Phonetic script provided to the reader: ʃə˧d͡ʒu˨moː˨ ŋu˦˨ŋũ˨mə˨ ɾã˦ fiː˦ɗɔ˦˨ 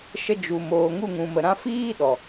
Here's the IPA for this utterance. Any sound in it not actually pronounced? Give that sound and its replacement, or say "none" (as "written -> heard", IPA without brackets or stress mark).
ɔ˦˨ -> ɔ˨